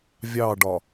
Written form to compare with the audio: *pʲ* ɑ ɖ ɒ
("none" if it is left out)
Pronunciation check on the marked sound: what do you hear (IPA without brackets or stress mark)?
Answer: vʲ